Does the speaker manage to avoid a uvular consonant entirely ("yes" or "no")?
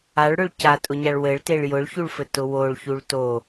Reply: yes